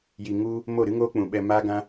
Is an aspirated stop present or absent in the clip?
absent